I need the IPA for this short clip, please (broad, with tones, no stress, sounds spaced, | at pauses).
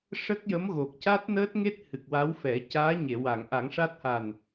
ʂ ə˦˥ k̚ j ə˧˥ m ɣ o˨˩ k̚ c a˦˥ t̚ n əː˦˥ t̚ ŋ e˦˥ t̚ h ɨ˨˩ k̚ w a˧˥ w f ɛ˨˩˦ c aː˧˥ ɲ e˨˩˨ w a˨˩˨ ŋ ʔ a˨˩˦ ŋ ʂ a˦˥ t̚ h a˨˩ n